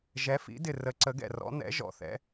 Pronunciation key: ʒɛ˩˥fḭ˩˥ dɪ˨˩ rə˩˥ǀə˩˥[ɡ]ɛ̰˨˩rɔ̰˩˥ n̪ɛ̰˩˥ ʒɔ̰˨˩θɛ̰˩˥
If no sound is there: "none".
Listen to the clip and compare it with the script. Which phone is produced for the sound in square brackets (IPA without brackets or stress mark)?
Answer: ɡ